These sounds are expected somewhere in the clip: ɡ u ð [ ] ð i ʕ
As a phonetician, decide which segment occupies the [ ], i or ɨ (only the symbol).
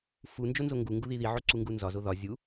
i